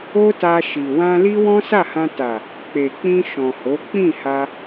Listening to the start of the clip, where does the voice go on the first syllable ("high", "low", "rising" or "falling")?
high